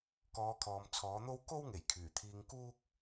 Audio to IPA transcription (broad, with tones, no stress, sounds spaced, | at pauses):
k ɔː˨˧ kʰ ɔː˨ m t͡sʰ ɔː˨˥ n̪ o˥ w k o˥ w ŋ e˨˩ j kʰ yː˨˩ t̪ʰ iː˧ ŋ k uː˥ k̚